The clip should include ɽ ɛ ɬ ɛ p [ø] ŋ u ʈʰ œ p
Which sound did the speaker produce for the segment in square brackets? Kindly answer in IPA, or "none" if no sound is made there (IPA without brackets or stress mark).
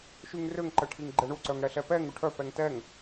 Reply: ɛ